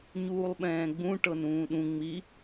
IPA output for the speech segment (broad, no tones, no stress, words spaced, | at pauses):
ɲuːlˠɓɛ̃ːɡ͡bũ ʈɤnũːɗũ ŋ͡mi